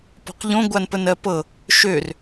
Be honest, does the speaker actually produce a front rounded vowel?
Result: yes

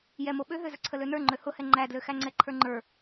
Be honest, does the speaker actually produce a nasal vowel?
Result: no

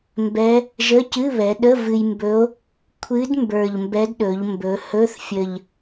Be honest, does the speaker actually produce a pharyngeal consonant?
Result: no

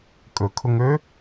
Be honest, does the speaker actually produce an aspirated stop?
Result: yes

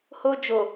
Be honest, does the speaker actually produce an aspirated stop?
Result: no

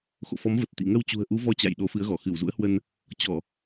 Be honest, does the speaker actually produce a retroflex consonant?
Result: no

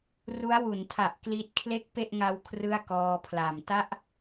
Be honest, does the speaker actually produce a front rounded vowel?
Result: no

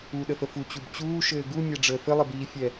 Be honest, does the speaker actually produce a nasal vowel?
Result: no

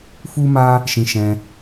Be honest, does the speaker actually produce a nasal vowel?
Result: yes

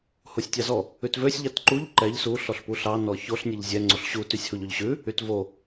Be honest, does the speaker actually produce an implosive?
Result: no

